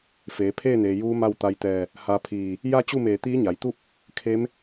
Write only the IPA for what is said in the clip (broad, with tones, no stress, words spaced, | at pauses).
feː˩˧ pʰeː˥˨neː˩ juː˧˥ma˥˨wt̪a˧jt̪ɛː˧˩ | ha˧pʰiː˧˩ | ja˥˨t͡ɕu˥˨meː˧˩ t̪iː˧˥ɲa˩˧jt̪u˥˨p̚ | kʰe˧˥m